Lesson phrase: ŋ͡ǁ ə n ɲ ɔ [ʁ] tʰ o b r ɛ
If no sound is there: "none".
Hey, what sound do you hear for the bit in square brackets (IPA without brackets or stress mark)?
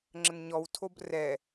w